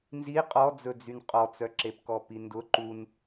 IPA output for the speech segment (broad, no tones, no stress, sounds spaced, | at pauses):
n z i qʼ ɔ d͡z ɵ d͡z y n qʼ ɔ t͡s œ ǁ e p k ɔ p i n d ʊ ǃ u n